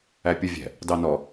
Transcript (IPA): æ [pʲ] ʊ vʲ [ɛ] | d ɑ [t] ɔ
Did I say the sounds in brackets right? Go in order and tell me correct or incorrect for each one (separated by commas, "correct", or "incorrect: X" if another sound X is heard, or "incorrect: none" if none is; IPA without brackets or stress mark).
correct, incorrect: ɛ̤, incorrect: n